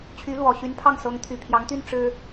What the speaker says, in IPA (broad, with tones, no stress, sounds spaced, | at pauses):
t͡ɕʰ y˧˥ l w ɔ˨˩ ɕ y˧˥ n pʰ ɑ˥˩ ŋ s ɤ˧˥ ŋ t̪ʰ y˨˩ pʰ j ɑ˧˥ ŋ t̪ y˥ n ʈ͡ʂ ɻ̩˥